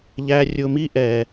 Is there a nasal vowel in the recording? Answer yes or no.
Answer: no